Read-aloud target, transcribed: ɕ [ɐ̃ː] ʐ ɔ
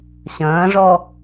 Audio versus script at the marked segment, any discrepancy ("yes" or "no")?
no